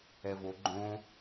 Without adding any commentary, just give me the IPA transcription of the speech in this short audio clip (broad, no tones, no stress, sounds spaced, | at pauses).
ɛ v o ɡ͡ǃ õ